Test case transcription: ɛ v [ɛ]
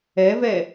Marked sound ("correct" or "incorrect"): correct